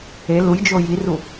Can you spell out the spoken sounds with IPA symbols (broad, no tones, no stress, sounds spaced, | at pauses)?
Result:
e l u j d͡ʒ o j i r u